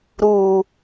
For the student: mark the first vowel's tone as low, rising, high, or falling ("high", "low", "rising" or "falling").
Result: low